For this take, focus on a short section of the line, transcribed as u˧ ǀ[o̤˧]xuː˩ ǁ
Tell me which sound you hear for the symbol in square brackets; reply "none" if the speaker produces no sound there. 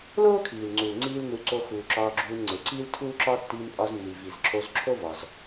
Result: o˧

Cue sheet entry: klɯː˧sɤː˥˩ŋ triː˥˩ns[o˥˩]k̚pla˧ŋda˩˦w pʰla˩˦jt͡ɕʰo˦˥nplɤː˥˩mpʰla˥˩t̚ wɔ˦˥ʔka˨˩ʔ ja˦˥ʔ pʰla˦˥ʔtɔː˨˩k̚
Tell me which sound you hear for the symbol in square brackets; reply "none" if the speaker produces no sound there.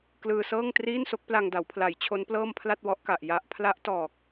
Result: o˦˥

